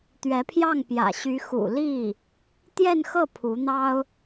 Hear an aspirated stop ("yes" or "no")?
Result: yes